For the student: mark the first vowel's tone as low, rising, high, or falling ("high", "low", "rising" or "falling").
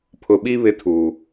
low